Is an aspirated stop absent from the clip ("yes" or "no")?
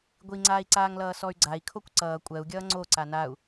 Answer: no